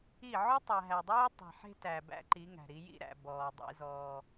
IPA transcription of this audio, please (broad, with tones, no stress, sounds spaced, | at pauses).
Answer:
i˦˨ ʕ ɵ˦ tˤ æ˨ ɦ æ˨ dˤ uː˦ tˤ e̤˨ ħ e̤˦ t æ˨ b æ̰˦ ǃ i˨˦ ŋ æ̤˨ ɾ i˨˦ j ḭ˦ ɾ æ̰˨ b ɔː˨ dˤ ḭ˦ z ɔː˦